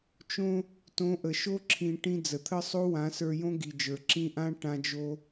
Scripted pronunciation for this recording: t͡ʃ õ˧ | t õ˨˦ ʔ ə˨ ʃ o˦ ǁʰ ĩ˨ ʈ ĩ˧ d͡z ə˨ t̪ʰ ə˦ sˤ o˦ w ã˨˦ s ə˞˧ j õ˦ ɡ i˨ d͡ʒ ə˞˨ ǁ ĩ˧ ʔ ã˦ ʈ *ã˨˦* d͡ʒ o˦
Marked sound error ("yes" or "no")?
yes